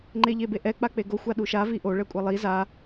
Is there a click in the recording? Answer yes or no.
yes